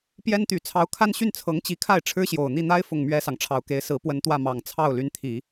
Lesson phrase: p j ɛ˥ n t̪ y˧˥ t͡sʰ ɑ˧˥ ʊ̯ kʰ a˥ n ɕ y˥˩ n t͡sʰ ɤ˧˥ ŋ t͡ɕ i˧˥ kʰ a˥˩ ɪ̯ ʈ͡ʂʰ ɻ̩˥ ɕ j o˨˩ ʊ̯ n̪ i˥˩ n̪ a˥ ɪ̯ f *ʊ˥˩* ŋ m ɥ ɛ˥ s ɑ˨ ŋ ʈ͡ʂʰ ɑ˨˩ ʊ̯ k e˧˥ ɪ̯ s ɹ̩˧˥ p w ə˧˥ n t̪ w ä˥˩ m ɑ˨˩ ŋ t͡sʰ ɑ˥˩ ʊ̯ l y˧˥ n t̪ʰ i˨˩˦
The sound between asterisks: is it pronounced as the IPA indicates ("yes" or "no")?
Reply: yes